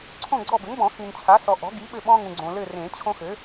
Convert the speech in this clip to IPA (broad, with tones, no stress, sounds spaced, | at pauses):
ǀʰ õ˦˨ ɡ͡ǀ ɔ˦˨ b ɘ˩˥ ŋ b ɔ̃˨˩˦ x ĩ˨ n t͡ɕʰ a˩˥ s ɔ˨ ʔ ɔ̤˩˥ ɡ i˩˥ ɓ ɘ˦˨ ɓ ɔ̃˦ ŋ ũ˨ ɡ͡ǀ õ˨ l ɘ˦˨ r ẽ˨˩˦ t͡ɕʰ õ˦ x ɘ˩˥